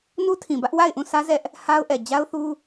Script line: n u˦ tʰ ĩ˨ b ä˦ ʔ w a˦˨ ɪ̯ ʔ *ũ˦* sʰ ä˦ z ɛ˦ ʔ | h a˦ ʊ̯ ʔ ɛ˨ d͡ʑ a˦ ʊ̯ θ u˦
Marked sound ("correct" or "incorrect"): incorrect